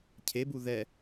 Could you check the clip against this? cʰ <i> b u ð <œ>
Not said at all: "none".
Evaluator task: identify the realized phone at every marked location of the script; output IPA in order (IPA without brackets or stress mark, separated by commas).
e, ɛ